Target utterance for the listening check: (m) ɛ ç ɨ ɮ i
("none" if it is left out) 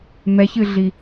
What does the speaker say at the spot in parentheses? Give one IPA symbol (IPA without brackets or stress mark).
m